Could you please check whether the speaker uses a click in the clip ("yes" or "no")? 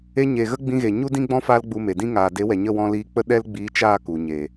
no